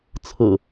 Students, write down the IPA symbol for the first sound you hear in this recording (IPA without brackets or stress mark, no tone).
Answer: t͡sʰ